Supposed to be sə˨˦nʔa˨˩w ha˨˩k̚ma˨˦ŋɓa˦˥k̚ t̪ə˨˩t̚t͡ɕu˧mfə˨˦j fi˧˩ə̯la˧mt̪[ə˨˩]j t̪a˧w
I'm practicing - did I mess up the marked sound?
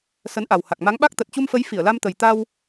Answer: no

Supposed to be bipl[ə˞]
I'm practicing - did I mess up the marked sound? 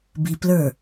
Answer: no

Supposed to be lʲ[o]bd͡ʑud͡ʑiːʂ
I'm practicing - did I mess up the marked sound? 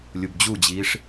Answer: yes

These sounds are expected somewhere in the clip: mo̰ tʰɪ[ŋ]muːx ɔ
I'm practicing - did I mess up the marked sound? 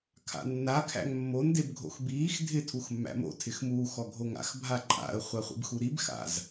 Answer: yes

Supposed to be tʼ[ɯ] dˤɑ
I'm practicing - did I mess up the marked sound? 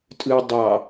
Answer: no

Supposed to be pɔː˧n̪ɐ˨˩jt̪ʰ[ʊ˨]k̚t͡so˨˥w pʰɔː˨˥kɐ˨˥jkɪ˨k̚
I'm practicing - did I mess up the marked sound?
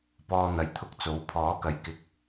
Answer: yes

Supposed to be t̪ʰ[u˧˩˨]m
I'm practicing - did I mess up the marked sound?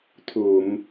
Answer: no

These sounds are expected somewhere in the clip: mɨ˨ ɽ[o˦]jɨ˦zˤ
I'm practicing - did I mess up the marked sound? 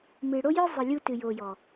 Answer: no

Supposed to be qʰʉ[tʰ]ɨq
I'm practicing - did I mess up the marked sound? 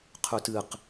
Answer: yes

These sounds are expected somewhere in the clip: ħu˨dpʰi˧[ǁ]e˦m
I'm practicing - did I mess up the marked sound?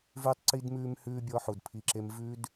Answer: no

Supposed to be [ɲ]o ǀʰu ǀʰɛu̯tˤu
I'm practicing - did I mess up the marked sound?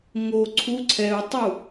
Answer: yes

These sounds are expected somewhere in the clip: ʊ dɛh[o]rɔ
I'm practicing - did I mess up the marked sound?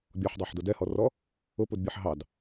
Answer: yes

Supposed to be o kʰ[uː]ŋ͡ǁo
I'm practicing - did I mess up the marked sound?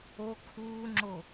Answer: no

